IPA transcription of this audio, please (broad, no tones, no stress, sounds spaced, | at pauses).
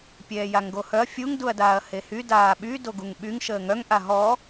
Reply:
pʲ ɛː j a ŋ ɡ o h œ ɐ̯ fʲ u ŋ d u ɐ̯ d aː ɐ̯ h e h y d aː ɓ y d o ɡ u ŋ ɓ y ŋ ʃ əː ŋ œ ŋ ʔ a ɦ ɔ